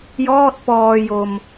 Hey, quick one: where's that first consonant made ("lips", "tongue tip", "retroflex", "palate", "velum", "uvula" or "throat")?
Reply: palate